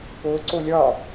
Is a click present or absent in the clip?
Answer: present